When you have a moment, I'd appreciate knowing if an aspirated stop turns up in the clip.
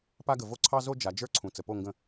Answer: yes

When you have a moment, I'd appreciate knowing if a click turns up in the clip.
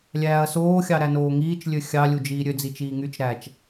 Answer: no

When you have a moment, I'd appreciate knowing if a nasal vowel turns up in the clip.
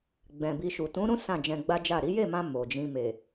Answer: yes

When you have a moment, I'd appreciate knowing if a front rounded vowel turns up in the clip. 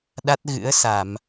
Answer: no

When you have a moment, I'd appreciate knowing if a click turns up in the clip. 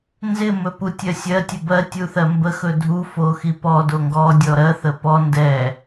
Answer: no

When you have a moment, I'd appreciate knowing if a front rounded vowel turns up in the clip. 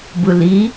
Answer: no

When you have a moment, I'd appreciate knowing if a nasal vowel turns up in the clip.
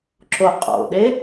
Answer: no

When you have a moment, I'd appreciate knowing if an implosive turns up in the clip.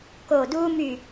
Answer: no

